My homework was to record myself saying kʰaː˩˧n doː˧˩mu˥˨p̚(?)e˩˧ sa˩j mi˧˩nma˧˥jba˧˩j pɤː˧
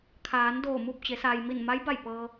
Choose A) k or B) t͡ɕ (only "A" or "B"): B